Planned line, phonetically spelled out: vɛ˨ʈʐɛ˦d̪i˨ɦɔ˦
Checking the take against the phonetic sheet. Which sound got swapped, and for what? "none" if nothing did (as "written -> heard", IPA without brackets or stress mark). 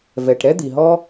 ʐ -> ɾ